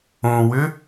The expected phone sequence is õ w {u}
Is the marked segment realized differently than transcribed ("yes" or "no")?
yes